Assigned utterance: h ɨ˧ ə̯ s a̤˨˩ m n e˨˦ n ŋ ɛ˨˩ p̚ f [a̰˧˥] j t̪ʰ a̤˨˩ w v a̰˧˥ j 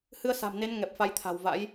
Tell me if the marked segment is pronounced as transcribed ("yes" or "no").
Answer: no